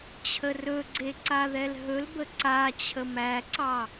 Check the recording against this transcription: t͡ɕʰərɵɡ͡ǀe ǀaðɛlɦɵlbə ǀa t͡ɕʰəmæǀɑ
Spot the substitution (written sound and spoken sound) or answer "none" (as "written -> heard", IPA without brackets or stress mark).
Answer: none